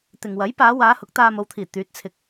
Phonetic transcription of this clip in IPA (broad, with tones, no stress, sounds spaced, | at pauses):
t̪ ɪ˨ ŋ w ɐ˨˥ j p aː˨˧ w aː˨˧ h ʊ˨˥ k̚ t̪ aː˧ m o˨˧ w t̪ʰ iː˨˩ t̪ yː˨˥ t̚ t͡sʰ ɪ˨ k̚